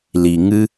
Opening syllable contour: low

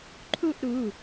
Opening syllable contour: falling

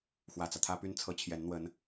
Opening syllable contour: low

